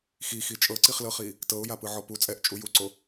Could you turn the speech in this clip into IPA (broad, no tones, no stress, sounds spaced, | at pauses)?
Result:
x i x i t͡ʃʼ ɤ ǀ i χ l ɤ χ i | t ɤ ʊ̯ j a p ɯ ʕ ɔ p u t͡sʼ ɛ ʔ t͡ʃʼ u j u ǀ o